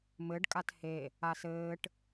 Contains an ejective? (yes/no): yes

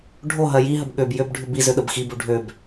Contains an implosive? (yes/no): yes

